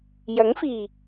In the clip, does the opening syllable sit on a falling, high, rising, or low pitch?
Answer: rising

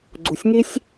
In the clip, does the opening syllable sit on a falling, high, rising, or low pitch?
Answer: low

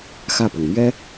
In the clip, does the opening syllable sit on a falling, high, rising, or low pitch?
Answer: falling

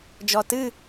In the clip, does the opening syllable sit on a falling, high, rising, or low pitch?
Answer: low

